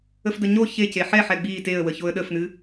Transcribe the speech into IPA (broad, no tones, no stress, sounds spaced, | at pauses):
ə f d ə ɲ o ç e c e ħ ɛ ħ ɛ ɡ͡b i t e ə̯ w ə ç o ə̯ ɗ ə f n ɨ